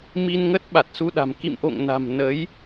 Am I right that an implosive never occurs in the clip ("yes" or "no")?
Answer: no